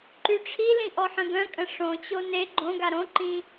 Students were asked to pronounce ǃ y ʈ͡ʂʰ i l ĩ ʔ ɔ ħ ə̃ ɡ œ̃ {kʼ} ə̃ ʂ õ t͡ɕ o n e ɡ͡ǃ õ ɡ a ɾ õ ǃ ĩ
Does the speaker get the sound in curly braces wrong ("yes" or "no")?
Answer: no